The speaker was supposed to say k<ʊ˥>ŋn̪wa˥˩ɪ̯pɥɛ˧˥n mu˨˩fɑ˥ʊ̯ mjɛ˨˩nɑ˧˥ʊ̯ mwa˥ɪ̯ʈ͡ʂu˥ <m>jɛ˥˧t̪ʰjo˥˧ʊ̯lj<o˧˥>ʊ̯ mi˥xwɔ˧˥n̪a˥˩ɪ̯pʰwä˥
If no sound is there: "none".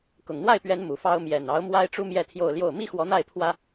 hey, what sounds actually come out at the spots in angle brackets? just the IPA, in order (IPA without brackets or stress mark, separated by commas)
ʊ˨˩, m, o˥˩